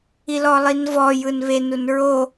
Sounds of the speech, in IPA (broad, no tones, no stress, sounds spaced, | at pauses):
i l ɔ lˠ i n v ɔ j ɯ n β e n u n ɹ o